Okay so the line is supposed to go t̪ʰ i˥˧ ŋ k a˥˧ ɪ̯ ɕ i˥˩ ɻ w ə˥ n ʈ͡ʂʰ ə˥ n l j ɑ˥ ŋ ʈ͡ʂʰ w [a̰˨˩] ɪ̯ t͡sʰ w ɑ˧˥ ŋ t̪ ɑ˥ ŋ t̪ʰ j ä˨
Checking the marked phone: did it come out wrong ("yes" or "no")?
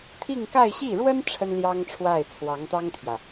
yes